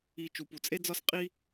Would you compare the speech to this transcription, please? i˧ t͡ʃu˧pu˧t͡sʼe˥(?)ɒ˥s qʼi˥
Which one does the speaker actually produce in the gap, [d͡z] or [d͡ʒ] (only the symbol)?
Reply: d͡z